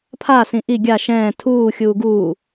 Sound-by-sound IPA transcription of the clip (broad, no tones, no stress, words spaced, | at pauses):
pʰa sĩʔi ɡʲa ʃɛ̃ː tʰuː xʲuːɡuː